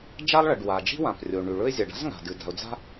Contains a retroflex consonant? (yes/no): yes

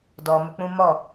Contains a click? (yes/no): no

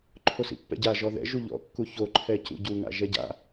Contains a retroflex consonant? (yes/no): no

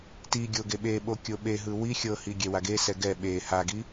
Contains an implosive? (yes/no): yes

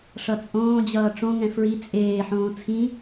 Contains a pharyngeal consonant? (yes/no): yes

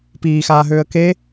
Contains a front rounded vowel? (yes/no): yes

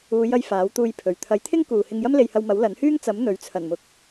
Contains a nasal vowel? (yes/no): no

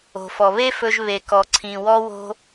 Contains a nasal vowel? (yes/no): yes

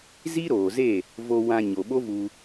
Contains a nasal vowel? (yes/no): yes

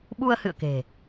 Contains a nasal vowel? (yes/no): no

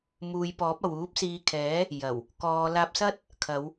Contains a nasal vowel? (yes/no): no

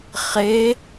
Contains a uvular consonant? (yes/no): yes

